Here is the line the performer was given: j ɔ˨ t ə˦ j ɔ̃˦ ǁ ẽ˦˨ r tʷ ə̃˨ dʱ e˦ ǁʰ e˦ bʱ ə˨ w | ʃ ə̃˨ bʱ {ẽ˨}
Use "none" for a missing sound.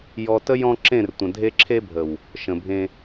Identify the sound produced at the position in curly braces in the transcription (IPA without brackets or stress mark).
ẽ˦